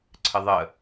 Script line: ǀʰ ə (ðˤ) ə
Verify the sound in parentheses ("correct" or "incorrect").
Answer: correct